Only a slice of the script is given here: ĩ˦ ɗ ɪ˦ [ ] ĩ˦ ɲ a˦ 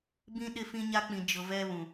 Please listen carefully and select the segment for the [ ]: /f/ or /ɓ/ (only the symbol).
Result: f